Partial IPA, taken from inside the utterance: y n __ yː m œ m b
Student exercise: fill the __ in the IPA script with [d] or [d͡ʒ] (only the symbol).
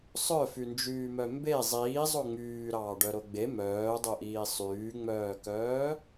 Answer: d͡ʒ